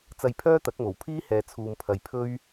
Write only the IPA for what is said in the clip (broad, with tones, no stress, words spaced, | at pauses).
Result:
t͡sɐ˧jpʰœː˥t̪ɐ˨˥k̚mo˨˩w pʰiː˥hɛː˨ t͡sʰuː˨mpʰɐ˨jpʰɵ˥ɥ